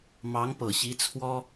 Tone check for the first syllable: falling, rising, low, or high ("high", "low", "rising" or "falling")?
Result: rising